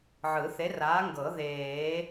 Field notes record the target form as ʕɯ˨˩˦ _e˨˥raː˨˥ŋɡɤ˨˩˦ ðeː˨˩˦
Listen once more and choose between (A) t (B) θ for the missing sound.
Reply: B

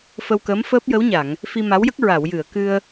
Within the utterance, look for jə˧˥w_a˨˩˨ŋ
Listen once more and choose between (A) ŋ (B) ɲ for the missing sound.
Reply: B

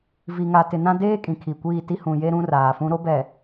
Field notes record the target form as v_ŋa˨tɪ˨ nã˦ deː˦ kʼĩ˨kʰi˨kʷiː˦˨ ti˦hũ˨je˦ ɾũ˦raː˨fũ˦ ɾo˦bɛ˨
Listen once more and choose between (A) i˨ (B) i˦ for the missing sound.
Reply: A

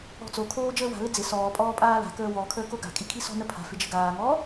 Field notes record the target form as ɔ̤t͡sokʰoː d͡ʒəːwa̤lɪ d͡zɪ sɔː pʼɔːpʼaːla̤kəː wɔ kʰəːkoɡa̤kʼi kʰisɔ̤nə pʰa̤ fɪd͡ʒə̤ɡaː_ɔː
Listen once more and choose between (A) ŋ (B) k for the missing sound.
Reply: A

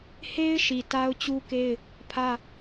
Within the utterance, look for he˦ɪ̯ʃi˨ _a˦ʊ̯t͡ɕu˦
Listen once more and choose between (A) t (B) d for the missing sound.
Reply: A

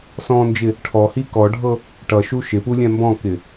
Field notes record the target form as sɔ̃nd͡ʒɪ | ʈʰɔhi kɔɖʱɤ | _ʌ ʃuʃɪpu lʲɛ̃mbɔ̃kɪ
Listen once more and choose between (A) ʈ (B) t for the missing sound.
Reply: A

